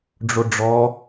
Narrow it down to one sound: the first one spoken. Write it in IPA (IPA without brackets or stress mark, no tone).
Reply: ɖ͡ʐ